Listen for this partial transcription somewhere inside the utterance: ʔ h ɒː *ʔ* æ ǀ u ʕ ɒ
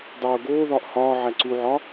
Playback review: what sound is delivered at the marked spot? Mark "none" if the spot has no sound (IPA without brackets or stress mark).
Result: ʕ